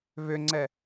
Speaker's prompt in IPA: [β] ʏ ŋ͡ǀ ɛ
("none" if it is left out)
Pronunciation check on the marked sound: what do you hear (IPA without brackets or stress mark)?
β